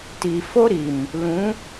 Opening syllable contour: low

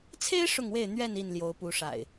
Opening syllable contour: high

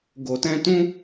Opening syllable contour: low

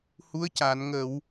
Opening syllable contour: rising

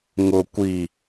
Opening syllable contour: low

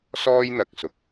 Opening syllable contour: high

